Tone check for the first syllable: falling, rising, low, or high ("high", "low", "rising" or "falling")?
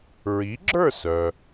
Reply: rising